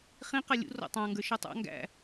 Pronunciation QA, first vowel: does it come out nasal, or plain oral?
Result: nasal